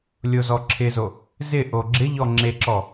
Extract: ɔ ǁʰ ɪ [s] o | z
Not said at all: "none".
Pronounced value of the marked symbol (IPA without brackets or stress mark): z